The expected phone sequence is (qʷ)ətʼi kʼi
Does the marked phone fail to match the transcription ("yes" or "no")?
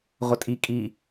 yes